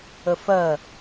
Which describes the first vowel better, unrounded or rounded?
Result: unrounded